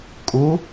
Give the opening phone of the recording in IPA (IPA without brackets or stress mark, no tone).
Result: kʼ